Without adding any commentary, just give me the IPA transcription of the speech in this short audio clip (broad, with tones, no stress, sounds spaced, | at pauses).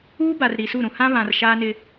uː˦ b a˨ r ɾ i˨ s u˦˨ ɾ ũ˨ h ã˦ β ã˨ r ʃ aː˦ n ɪ˦